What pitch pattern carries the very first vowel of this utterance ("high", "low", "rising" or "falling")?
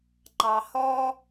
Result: low